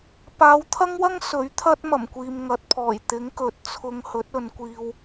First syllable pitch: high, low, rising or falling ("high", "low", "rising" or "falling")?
rising